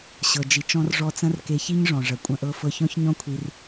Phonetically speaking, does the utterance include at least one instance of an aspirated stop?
yes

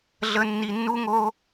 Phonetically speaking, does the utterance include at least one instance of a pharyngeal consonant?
no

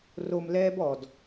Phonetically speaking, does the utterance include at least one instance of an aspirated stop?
no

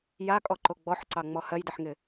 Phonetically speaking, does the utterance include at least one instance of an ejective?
yes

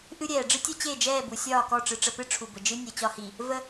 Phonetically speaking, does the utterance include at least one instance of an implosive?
no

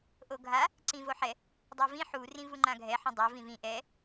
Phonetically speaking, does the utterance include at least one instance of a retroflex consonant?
no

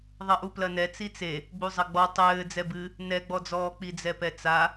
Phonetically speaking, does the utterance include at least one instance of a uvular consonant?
no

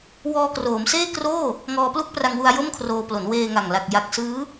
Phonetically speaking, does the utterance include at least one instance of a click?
no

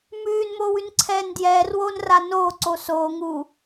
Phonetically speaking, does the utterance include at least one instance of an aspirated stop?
yes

